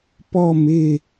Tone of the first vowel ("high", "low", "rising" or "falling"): falling